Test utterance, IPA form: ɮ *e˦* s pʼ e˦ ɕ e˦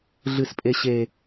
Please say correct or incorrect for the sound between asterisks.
incorrect